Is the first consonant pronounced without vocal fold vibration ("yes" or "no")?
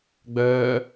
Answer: no